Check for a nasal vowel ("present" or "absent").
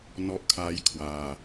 absent